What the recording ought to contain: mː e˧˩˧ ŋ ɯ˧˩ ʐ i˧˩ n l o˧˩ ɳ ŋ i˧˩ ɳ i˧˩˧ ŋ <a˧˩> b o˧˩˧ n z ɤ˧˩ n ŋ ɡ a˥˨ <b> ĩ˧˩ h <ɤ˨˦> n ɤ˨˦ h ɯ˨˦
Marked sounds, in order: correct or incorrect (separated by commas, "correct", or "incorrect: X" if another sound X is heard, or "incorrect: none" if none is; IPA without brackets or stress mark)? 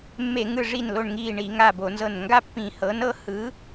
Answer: correct, incorrect: pː, correct